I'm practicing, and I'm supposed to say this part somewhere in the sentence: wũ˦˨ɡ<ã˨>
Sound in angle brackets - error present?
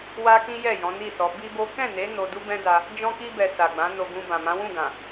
no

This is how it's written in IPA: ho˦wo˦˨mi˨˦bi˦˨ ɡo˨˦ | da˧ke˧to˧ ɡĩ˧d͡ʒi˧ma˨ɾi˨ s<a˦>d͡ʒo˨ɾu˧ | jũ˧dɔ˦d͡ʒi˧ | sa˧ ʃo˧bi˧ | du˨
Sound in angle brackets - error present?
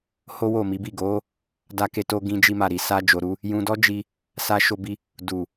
yes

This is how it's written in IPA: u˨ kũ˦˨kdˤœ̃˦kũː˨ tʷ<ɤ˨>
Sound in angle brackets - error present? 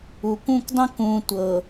no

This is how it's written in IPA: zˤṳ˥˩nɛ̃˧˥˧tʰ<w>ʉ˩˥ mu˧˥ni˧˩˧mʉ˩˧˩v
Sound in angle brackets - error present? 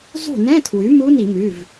no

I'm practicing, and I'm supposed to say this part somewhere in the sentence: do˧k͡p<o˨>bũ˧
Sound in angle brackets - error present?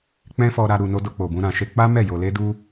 no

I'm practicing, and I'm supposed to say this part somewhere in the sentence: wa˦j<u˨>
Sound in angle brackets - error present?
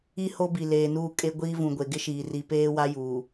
yes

